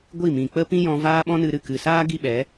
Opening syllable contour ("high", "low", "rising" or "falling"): falling